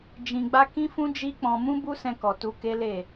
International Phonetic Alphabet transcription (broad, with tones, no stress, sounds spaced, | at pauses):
d͡ʒ ĩ˧ ɡ͡b a˦ k ĩ˦ f ũ˦ d͡ʒ i˦ k͡p ɔ̃˧ m ũ˦ b u˦ s ɛ̃˧ k ɔ˨ t u˧ k e˦ l e˦˨